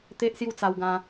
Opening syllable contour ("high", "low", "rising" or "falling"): high